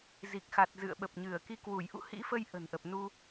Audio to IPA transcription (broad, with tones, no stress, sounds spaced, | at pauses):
z i˨˩ k̚ x a˨˩ t̚ z ɨ̰˧˨ ə̯ ɓ ə˨˩ p̚ ɲ ɨ˧˩ ə̯ k i˧ k w u˧˩ j ʔ ṵ˧˨ h ḭ˧˥ f ə˧ j ʔ ə̤˨˩ n ʔ ə˨˩ p̚ n u˧